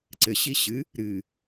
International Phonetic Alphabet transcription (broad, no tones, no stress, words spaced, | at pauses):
ǀɘɕi ɕɨ | ɾɨ